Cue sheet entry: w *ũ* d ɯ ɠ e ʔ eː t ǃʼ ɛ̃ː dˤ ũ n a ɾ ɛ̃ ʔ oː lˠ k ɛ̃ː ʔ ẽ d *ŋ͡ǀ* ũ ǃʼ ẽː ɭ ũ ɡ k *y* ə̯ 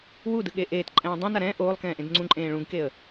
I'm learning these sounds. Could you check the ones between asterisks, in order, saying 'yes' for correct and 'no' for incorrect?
no, yes, no

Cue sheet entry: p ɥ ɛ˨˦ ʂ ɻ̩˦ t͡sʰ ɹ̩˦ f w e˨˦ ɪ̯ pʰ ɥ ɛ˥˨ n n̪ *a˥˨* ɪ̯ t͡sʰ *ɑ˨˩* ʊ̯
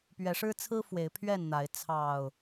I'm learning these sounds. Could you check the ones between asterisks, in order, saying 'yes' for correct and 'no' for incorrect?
no, yes

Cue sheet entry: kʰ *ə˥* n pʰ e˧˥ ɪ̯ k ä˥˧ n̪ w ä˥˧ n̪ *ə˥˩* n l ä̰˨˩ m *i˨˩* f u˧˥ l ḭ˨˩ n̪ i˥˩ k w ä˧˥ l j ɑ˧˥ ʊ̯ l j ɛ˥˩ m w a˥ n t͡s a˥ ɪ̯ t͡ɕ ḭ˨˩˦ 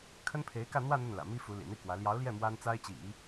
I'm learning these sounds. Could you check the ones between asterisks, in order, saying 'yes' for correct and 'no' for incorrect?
yes, yes, no

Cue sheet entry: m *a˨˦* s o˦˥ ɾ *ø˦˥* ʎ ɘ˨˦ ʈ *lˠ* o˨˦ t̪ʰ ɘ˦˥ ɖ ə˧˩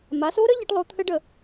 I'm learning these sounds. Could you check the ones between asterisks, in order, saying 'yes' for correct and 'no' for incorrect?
yes, no, yes

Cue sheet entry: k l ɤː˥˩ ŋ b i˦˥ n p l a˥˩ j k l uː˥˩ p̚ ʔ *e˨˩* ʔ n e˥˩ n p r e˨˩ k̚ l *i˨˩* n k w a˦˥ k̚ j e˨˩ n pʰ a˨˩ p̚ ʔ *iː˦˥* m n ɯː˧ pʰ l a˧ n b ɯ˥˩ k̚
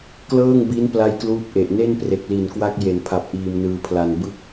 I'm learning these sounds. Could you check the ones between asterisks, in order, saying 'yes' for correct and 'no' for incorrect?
yes, yes, no

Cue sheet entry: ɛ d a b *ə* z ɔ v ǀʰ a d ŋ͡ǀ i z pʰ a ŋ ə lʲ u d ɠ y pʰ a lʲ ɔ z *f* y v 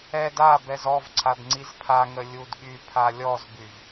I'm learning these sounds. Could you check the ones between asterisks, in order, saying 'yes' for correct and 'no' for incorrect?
no, no

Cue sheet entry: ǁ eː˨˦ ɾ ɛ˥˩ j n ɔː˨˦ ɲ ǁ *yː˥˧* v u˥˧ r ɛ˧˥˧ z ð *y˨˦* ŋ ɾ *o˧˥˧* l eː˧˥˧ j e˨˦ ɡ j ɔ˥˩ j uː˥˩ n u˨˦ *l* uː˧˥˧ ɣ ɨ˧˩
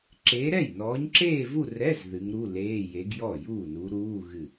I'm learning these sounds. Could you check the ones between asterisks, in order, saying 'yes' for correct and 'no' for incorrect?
no, no, no, no

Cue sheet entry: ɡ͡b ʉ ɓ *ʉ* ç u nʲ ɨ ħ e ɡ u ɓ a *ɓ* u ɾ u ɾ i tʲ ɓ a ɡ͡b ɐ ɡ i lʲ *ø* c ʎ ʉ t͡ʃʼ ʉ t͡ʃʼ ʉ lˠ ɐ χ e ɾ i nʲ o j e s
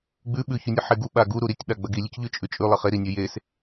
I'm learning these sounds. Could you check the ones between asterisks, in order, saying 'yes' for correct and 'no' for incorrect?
yes, no, no

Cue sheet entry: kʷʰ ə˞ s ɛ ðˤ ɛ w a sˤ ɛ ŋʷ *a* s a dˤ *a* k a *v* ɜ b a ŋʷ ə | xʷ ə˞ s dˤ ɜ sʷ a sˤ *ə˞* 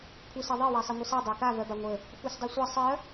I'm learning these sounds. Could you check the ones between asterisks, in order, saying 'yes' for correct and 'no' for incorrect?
no, yes, yes, no

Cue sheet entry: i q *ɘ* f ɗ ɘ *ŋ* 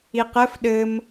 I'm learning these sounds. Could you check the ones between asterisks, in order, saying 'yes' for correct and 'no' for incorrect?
yes, no

